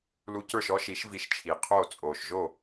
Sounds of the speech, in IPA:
l u˧ c ə˞˥˩ ʃ ɔ˥ ʃ i˩˥ ʃ v i˧ ʃ t͡ʃʰ iː˩ qʰ oː˥˩ t͡sʼ oː˩ ʃ ʒ o˥˩

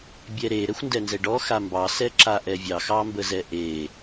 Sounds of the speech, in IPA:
bʲ ɛ ɾ e ɾ ɛ xʷ n d ɛ n z ɛ ɖ ɔ x a m b ɑ s ɛ ǁ a ʔ ɛ vʲ ɑ x ɑ m b ə z ɛ ʔ e

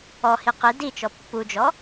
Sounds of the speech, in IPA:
ɔ h i q i d i t͡ʃ ɔ pː u d͡ʒ ɔ

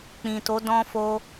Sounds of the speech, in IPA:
k͡p ĩ˨ t o˨˦ d ɔ̃˧ f o˧

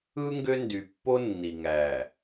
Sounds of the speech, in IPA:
ɯ˦ ŋ ɡ ø˦ n d y˨ pː o˦ nː i˨ ŋ æ˨

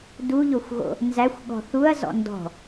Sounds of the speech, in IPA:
d u ʎ o xʷ ɣ o̰ | n z æ xʷ ɠ ɔ̤ θ u ɐ̯ z ɔ̰ n d ɔ̤

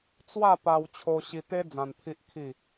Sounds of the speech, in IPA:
t͡s w a˥˧ p a˧ w t͡ɕʰ o˧ ɕ i˧ t̪ e˦ d͡z ã˧ n pʰ i˦ ʔ kʰ i˥˧

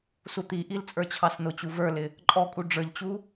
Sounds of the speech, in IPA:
s u t̪ i ʔ i l t͡sʼ ə˞ t͡ɕʰ ɑ s n ʊ t͡ɕ u v ə˞ l ɪ | ǃʼ ɔ kʼ u ɖ͡ʐ ə˞ ʎ t͡ɕ u

